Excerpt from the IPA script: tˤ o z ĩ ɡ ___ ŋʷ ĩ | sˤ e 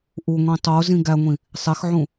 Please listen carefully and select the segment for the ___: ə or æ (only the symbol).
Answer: æ